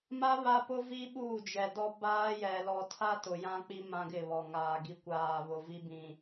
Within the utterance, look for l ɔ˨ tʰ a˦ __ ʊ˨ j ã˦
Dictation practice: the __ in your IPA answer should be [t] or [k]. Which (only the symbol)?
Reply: t